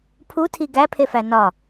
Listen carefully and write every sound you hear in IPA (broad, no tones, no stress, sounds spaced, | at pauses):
pʰ u tʰ i ɡ æ pʰ e f æ n ɒ